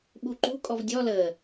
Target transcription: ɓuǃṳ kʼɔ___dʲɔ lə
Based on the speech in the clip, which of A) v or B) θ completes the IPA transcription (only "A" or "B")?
A